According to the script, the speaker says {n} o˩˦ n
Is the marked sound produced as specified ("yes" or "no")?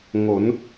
no